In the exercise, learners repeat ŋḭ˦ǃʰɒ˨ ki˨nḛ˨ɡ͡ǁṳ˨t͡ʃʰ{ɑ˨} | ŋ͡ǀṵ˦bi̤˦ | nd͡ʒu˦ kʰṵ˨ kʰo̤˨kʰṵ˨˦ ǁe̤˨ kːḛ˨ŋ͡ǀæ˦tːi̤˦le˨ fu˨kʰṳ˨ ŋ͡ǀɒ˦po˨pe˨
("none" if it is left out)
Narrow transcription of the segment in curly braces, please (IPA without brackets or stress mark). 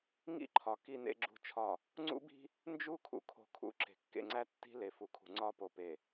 ɒ˨